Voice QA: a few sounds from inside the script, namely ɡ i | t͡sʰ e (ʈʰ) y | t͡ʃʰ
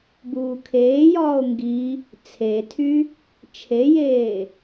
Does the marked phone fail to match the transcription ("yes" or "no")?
yes